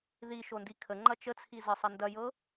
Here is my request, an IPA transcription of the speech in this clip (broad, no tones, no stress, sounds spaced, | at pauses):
ð i ʃ o n d i kʰ ə ŋ͡ǃ ɐ t͡ʃ ə t͡sʰ i z ə sˤ ɐ n d ɐ j ɤ